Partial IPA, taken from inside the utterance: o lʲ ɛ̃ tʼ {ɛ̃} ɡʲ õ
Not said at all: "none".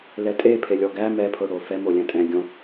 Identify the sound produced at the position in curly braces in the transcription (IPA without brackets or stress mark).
ɛ̃